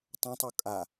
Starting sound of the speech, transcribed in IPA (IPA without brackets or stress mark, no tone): tˤ